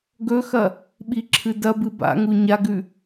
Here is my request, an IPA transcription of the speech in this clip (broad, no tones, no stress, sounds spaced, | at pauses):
ɡ ɵ x ɐ | ɓ i ǁʰ ɨ d ɐ b ɨ b a̰ ŋ u ɲ a ɡ ʉ